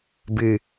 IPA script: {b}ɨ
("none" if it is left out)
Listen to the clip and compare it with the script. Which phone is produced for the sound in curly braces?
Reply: b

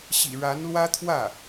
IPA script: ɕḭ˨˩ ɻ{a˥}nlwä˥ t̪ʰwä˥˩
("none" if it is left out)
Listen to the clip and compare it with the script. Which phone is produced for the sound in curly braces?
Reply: a˧˥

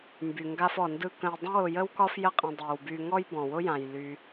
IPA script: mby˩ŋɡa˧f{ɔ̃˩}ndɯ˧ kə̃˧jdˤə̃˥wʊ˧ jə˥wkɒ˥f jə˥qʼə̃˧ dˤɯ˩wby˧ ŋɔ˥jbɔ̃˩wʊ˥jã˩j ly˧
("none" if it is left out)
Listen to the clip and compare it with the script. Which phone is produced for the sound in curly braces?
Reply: ɔ˩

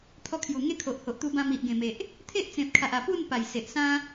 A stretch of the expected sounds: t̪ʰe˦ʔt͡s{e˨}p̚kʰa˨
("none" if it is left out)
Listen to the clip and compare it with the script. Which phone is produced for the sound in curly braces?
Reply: ẽ˨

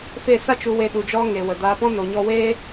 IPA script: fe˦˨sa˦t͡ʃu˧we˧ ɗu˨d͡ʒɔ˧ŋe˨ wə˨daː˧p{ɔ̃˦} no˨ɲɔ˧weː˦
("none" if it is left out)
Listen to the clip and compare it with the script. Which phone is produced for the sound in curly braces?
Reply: ɔ̃˦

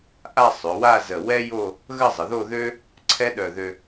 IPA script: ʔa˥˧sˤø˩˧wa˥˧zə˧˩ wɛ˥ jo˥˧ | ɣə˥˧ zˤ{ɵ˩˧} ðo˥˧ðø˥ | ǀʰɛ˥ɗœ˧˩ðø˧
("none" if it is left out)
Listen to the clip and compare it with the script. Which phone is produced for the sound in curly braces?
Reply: ə˩˧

